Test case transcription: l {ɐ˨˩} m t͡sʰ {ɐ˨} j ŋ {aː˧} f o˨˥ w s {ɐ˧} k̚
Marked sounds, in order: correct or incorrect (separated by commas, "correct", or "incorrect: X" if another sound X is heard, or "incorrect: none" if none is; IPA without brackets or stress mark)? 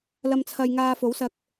incorrect: ɐ˨, correct, correct, correct